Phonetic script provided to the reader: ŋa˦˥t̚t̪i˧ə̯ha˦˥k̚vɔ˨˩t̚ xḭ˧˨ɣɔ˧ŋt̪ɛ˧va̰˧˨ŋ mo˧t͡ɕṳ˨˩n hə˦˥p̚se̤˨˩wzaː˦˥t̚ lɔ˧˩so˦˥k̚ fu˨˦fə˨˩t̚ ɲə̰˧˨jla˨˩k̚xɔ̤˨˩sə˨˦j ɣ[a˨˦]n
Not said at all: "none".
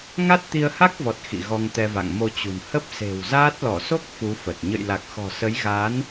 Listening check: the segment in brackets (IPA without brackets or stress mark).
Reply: a˨˦